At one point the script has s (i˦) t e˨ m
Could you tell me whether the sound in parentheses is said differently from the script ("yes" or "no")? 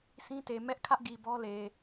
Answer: yes